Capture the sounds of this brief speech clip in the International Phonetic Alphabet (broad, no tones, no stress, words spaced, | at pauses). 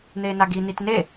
n̪eːnaɡi nitne